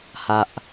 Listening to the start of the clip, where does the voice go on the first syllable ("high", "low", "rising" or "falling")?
low